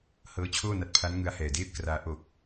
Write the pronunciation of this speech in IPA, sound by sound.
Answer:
h ɤː˦˥ t͡ɕʰ oː˥˩ n a˦˥ t̚ pʰ a˦˥ n ŋ ɯ˦˥ a̯ h ɛː˨˩ d eː˥˩ p̚ k r aː˦˥ ʔ o˨˩ k̚

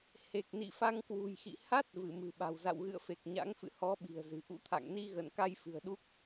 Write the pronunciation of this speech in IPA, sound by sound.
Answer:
h e˨˩ k̚ n ḭ˧˨ f a˧ ŋ k w ṳ˨˩ j x ḭ˧˨ h a˦˥ t̚ v ɨ˧˩ m ɨ̤˨˩ ɓ a̤˨˩ w z a̰˧˨ w ɣ ɨ̰˧˨ ə̯ f e˨˩ k̚ ɲ a̰˧˥ ŋ f ɨ̰˧˨ h ɔ˨˦ ɓ i̤˨˩ ə̯ z ɨ̤˨˩ ʔ ṵ˧˥ t̪ʰ a̰˧˨ ŋ n i˧ ɣ ə˧˩ n k a˧ j f ɨ̤˨˩ ə̯ ɗ u˦˥ k̚

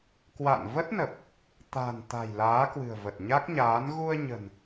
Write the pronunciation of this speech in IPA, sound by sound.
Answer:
k w a̰˧˨ n v ə˦˥ t̚ n ə˨˩ p̚ | t̪ a̤˨˩ n t̪ a̤˨˩ j l aː˨˦ k w ɨ̤˨˩ ə̯ v ə˨˩ t̚ ɲ a˦˥ k̚ ɲ aː˨˦ n ɣ u˧ ə̯ ɲ ə̤˨˩ n

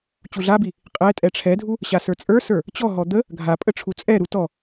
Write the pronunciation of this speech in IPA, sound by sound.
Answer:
t͡ɕ u ɮ a b i | qʼ ɛ tʼ ɛ ʈ͡ʂʰ ɛ dʱ u | ɕ a s ə˞ t͡sʼ ə˞ s ə˞ | t͡ɕ ɔ ɦ ɔ d̪ ə | ɡʱ a pʼ ə ʈ͡ʂʰ u t͡sʼ ɛ ɾ u t ɔ

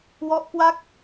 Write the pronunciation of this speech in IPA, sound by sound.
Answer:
w ɔ˦˥ ʔ k w a˥˩ k̚

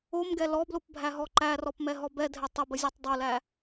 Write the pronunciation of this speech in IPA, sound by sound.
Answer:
o m ɡ ɛ l ɔ b l o p bʱ æ ɦ ɔ ǃ æ r ɔ p m ɛ ɦ ɔ b ɛ dʱ ɛ tˤ ə b ə zʲ ɛ tˤ dˤ o l æ

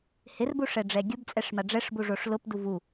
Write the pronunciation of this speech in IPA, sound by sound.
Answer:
h ɪ r b u ʂ ɛ ɖ͡ʐ ɛ ɡʲ ʊ b t͡sʼ ɛ ʂ m a ɖ͡ʐ ɛ ʂ b u ʐ o ʂ l ʊ p d u v u

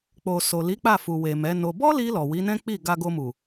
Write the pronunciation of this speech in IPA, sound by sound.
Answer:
k͡p o˨ s o˨ l i˨˦ k͡p a˦˨ f u˨ w e˨ m ɛ˨˦ n o˧ b ɔ˦ l i˧ l ɔ˨ w i˨˦ n ɛ̃˦ k͡p i˦˨ ɡ a˧ ɡ o˧ m u˨

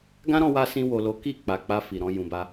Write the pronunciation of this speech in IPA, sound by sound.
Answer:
ɡ ã˦ ɾ ɔ̃˧ w a˧ s ĩ˧ w o˨ l o˨˦ k i˦˨ k͡p a˨ k͡p a˧ f i˨ ɾ ɔ̃˧ j ũ˨ b a˧

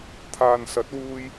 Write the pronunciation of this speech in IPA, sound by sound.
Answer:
t̪ʰ aː˨ n s ɐ˨˥ t̚ w uː˧ j

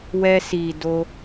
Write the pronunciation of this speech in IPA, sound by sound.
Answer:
w ɛ˧ s i˨ d o˧

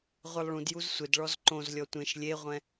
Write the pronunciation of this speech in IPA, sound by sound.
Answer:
ʁʷ ɛ lˠ ɭ ũ d j u z sʷ ɪ d ɭ ɔ z ǃ õ z lʲ ɔ tʷ ẽ ʃ lʲ e ʁʷ ɛ̃

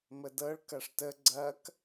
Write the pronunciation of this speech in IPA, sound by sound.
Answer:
m ə d ɤ ɭ k ɐ ʂ t ə ɡ͡ǀ ɐ k

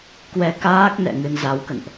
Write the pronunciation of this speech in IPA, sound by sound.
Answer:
k w ɛ˧ k aː˦˥ k̚ n ɛ̰˧˨ ŋ ɨ˧ n z a˨˦ w k ə̰˧˨ n ʔ

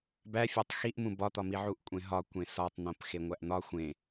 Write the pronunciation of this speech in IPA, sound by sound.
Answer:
b æ fʲ æ tˤ x i ʔ m ũ b ɒ t̪ ɒ m i ʕ u ʔ kʷʼ ẽ ɦ ɒ kʷ ẽ s ɒ tˤ n̪ õ p x e ŋʷ æ ʔ n̪ ɒ xʷ ẽ

